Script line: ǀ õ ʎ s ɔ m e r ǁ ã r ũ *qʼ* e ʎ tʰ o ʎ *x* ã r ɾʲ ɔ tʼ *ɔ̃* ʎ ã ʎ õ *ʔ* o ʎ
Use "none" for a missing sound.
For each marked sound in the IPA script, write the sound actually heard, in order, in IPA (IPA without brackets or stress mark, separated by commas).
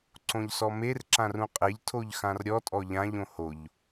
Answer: qʼ, x, ɔ, h